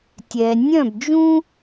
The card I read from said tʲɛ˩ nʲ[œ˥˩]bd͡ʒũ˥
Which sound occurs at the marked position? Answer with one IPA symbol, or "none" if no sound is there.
œ̃˥˩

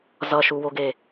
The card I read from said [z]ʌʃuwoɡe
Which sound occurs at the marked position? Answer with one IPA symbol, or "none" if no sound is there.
z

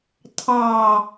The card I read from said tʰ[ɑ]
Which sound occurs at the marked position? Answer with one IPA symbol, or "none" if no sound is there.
ɑ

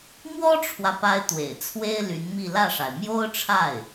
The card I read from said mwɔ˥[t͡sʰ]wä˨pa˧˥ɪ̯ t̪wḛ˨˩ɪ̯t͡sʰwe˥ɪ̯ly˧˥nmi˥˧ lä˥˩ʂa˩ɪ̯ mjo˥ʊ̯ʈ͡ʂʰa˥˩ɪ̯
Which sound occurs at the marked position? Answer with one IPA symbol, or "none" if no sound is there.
ʈ͡ʂʰ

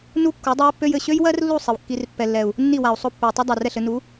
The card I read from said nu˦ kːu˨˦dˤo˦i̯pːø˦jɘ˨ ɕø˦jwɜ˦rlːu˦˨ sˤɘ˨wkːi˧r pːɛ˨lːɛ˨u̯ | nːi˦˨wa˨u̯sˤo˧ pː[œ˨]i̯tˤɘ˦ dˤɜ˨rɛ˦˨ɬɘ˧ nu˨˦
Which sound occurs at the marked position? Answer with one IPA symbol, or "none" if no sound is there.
ø˨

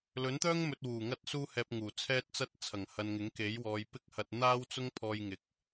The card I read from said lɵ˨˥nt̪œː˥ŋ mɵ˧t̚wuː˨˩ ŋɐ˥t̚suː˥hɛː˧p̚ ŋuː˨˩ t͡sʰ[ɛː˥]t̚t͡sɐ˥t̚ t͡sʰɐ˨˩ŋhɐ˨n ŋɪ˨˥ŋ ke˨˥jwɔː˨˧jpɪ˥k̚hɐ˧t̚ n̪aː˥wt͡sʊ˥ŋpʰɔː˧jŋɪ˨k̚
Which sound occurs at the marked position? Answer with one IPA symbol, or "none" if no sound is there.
ɛː˥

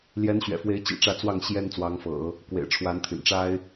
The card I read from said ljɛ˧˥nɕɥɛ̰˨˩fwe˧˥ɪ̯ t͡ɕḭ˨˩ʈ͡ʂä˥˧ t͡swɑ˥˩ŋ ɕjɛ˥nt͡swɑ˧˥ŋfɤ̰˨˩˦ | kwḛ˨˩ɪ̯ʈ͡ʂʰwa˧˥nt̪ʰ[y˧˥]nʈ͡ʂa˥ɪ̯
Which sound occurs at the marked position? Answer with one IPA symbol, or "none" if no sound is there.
y̰˨˩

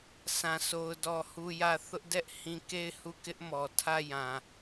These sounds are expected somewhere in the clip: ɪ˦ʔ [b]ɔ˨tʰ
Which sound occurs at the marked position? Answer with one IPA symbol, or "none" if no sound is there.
m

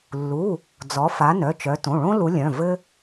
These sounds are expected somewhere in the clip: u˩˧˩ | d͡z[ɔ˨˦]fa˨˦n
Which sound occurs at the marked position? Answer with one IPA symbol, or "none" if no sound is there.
ɔ˨˦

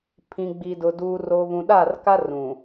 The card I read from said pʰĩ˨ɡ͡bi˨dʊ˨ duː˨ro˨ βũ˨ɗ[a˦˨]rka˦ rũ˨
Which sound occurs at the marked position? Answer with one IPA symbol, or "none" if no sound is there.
a˦˨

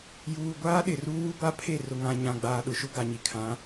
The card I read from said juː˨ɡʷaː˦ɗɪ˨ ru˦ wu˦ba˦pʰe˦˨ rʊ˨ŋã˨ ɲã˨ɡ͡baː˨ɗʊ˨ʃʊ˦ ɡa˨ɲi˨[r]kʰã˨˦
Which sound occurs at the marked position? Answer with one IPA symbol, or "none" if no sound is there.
none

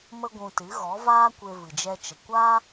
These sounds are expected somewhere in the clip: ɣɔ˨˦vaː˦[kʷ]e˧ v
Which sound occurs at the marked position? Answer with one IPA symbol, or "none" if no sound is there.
kʷ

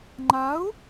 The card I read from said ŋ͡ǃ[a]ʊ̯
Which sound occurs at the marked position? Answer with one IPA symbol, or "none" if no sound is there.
a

